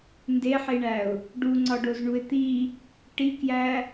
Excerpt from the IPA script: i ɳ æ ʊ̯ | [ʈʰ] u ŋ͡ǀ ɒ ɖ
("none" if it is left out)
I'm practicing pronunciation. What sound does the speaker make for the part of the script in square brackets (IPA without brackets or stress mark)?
ɖ